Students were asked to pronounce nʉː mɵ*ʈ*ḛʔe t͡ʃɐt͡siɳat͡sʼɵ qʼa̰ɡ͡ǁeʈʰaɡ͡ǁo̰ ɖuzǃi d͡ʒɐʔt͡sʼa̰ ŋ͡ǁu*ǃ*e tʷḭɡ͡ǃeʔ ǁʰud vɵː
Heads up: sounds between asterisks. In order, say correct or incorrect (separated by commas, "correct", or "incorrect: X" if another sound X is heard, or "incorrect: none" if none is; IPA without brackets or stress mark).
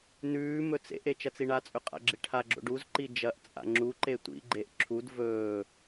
incorrect: t͡s, correct